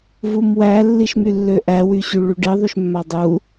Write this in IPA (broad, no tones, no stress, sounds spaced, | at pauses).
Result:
v u m w æ lː i ʃ m y lː ø ʔ æ w y ɕ y ɭ y ɖ i ðˤ y ʃ mː a dˤ u